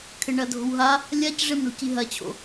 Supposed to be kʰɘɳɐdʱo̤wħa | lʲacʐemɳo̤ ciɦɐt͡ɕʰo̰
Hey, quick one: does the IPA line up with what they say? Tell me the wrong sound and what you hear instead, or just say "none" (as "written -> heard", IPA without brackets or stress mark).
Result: ħ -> ɦ